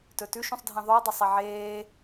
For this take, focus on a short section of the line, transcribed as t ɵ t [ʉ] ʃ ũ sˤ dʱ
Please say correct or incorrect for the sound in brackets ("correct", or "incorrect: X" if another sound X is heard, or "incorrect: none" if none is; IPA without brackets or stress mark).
correct